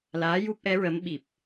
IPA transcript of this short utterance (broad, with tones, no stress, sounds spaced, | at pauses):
l aː˧˥ j u˦˥ p̚ ʔ ɛ˧˥ ɹ ə˧˥ m ɓ i˨˩ p̚